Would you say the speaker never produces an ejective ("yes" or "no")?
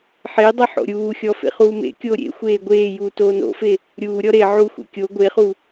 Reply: yes